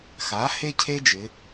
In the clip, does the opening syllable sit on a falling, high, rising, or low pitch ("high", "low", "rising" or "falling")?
rising